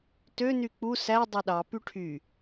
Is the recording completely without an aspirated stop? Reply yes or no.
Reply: no